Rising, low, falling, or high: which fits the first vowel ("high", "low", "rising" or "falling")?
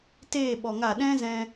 falling